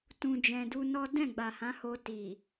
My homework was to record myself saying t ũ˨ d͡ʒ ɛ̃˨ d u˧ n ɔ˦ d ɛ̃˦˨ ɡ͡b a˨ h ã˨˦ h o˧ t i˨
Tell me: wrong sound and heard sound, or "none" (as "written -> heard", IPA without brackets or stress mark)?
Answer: none